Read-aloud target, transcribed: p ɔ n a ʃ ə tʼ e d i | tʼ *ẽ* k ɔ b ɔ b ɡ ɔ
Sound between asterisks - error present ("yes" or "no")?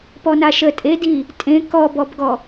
no